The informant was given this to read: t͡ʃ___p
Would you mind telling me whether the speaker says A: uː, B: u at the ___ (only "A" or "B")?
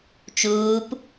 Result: A